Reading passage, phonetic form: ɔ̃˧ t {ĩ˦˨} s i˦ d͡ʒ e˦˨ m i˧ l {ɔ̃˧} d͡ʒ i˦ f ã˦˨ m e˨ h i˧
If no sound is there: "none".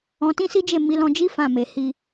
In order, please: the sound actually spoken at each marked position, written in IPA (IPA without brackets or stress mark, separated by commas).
ĩ˦, ɔ̃˧